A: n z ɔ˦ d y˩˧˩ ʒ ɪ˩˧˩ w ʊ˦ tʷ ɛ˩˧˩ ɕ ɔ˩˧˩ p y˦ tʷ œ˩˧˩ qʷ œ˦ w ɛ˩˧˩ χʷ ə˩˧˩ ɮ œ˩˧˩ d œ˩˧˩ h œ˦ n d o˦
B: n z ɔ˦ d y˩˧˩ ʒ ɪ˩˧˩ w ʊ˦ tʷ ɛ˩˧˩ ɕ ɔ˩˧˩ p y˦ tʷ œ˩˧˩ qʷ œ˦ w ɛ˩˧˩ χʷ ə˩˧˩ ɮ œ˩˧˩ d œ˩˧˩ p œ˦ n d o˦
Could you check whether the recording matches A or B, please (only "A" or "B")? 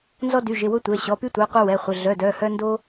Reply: A